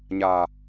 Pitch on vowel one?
low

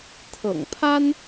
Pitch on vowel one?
low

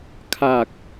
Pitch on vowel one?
low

